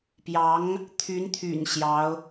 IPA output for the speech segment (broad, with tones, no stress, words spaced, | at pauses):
pjɑ˧˥ŋ | t̪ʰy˧˥nt̪ʰy̰˨˩n ɕjɑ˧˥ʊ̯